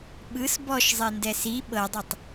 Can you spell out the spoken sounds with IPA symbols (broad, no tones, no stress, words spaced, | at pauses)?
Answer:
ɓɯs bɔʃzˤendɛ si ɓɤdˤetˤ